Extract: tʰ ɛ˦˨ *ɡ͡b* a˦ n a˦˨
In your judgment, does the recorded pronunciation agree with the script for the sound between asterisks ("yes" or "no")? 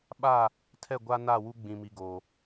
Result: no